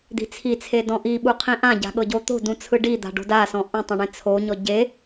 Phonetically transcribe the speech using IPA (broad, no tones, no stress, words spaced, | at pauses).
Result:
d̪i̤t͡sʰit͡sʰe dɔ̃ʔiɓu qʰĩʔãɟa̤ ɠɤɟot̪o̤dũ t͡sʰɯɖid̪a̤ ɖo̤dasɔ̃ ʔũtˤɛ̃ ɳẽt͡sʰoɲɔ ɟe